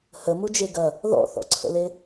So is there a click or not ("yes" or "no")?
yes